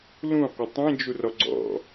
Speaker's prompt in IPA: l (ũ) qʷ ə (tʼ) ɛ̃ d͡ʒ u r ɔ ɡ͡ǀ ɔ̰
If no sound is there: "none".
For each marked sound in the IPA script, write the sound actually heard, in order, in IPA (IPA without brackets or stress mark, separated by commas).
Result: ũ, tˤ